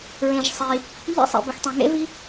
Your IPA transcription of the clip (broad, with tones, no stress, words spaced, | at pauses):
ɹẽ˨ʒsˤi˨ | ʎḛ˦˥sˤḛ˨bɪ˨x tˤẽ˨ŋḛ˦˥vi˦˥